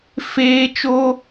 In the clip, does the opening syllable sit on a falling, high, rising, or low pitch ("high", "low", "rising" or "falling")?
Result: high